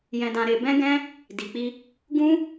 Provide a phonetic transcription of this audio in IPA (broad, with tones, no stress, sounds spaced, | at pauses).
j ɛ̃˧ d ã˧ ɾ e˧ b ɛ̃˦ ɡ ɛ̃˦ | d i˨ k͡p i˧ | ɡ ũ˦